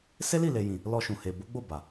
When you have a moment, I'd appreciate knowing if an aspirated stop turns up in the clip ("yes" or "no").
no